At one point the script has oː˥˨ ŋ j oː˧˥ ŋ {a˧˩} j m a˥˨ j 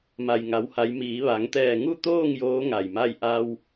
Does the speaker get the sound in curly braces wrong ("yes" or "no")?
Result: no